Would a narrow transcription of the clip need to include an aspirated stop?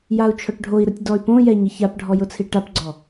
yes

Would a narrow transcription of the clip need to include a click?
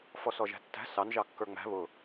no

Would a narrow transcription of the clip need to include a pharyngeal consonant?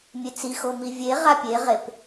no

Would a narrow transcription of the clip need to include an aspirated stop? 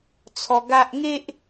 yes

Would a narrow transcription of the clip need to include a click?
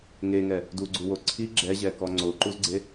yes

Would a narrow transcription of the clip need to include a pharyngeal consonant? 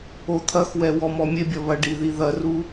no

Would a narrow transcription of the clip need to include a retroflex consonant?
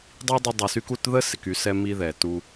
no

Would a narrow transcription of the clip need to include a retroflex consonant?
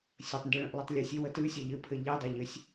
yes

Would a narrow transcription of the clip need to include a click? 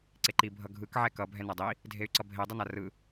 yes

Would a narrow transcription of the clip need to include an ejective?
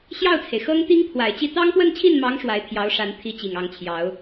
no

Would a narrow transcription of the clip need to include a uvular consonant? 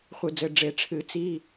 yes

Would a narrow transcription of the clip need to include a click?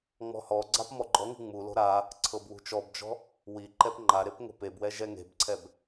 yes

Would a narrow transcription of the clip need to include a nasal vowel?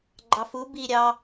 no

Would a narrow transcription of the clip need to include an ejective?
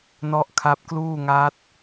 no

